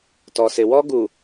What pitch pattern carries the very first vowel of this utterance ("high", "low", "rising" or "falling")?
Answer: low